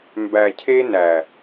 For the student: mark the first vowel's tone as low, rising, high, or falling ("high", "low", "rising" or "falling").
low